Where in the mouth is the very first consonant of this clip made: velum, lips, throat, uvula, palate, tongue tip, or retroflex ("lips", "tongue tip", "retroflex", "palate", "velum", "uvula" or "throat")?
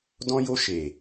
tongue tip